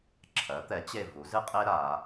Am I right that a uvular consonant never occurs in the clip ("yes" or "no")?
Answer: no